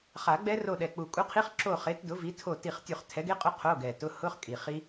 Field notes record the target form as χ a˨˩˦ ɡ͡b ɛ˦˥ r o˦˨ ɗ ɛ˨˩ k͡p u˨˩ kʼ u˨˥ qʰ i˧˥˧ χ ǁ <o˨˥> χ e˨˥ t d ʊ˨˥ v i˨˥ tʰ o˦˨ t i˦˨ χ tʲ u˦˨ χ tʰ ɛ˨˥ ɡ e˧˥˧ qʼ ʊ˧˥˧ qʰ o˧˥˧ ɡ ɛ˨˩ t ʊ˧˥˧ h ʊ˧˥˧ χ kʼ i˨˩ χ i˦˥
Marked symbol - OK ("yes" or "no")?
no